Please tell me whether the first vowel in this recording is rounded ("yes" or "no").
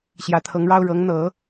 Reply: no